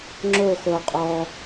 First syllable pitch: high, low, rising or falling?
falling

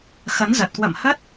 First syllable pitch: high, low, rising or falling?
rising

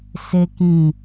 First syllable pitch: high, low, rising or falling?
high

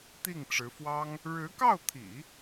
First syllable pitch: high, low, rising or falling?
falling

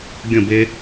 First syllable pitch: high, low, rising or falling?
falling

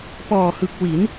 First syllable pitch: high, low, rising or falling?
low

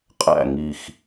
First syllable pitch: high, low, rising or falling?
falling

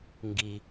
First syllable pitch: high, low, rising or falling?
low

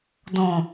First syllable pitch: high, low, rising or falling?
low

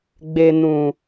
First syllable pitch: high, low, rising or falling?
low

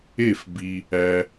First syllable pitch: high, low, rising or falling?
falling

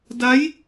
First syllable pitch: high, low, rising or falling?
rising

